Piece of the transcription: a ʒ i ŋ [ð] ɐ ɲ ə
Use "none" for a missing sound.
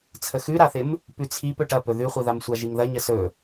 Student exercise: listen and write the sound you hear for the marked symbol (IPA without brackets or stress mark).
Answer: ð